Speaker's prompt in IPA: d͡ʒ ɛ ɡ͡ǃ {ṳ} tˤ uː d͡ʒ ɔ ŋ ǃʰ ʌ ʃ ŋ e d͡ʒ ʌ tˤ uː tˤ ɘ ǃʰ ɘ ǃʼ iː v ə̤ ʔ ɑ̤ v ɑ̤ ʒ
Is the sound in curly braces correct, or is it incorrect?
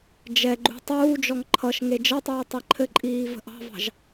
correct